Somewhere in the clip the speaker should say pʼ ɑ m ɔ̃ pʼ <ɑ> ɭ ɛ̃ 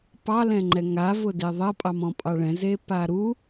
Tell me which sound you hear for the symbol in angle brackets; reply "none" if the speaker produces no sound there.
ɑ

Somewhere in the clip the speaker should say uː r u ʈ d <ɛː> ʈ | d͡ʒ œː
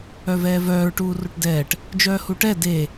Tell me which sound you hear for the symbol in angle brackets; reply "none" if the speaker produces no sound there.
ɛː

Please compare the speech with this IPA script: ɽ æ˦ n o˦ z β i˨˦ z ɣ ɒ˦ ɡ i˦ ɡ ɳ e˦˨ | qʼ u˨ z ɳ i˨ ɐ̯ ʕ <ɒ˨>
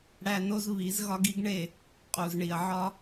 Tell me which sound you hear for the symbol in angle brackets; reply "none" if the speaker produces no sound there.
ɒ˦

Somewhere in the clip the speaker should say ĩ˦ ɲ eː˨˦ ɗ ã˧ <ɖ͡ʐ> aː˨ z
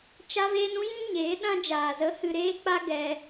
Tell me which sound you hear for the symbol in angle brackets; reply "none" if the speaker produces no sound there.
d͡ʒ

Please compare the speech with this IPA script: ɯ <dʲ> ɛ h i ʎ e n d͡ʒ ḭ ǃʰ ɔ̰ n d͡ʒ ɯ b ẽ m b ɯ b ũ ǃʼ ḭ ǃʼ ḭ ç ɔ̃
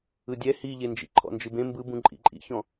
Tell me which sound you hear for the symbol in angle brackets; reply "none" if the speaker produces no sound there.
dʲ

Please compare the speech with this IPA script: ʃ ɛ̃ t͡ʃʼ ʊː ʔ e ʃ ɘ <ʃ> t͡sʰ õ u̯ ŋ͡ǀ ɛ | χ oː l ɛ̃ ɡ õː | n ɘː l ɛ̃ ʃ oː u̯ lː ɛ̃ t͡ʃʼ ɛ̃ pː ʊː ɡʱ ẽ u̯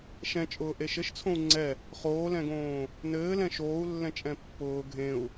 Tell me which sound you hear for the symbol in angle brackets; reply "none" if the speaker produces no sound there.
ʃ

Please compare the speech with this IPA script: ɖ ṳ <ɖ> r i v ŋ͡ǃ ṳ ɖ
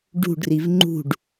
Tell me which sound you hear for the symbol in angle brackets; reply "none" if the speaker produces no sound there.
ɖ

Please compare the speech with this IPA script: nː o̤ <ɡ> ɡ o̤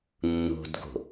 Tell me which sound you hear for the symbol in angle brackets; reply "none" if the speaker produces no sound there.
d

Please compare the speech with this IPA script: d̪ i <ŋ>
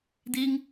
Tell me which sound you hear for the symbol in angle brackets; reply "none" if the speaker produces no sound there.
ŋ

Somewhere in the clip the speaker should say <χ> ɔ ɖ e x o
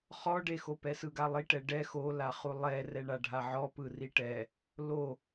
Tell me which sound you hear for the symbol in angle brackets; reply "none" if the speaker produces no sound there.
χ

